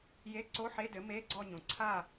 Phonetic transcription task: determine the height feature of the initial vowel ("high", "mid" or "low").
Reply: mid